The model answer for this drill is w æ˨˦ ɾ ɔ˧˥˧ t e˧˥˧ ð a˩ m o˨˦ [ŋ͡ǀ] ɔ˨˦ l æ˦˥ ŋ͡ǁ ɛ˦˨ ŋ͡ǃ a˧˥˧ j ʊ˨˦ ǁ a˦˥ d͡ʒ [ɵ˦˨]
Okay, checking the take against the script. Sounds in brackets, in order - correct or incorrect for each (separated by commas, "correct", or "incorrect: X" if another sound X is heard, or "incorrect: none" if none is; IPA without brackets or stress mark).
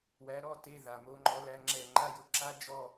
incorrect: ŋ͡ǃ, incorrect: ɔ˦˨